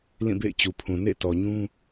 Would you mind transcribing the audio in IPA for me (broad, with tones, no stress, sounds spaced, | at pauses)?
l ĩ˦˨ b ḛ˦˨ ɪ̯ t͡ɕ u˨ pʰ ũ˨ n ḛ˦˨ t ɔ˨ ɲ ũ˦